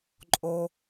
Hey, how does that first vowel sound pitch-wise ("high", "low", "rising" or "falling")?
low